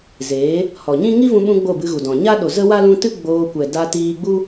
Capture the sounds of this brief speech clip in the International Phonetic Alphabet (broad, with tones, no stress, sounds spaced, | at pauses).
z eː˨˦ | h ɔ˨ ɲ ĩ˦ ŋ i˦ v ũ˧ ɓ ũ˧ ɡ͡b o˦˨ b ɨ˧ ɣ u˨ d ɔ̃˨ ɲ a˦ ɗ o˨ z ə˦ w a˦ l ũ˧ t ɨ˦ ɡ͡b oː˧ kʷ ɛ˨ d a˧ t iː˧ ɡ͡b u˦